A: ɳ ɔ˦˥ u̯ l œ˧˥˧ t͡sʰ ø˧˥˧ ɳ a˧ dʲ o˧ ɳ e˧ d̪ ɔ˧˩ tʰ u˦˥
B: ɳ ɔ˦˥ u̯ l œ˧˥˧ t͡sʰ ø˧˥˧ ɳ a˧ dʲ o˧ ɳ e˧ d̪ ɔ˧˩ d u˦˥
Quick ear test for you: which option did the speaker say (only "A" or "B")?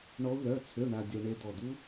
B